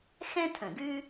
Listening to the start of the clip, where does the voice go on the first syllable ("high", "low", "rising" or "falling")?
high